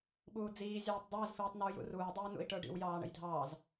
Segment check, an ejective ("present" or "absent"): absent